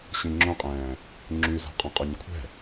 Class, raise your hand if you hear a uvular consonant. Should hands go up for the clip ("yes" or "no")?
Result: yes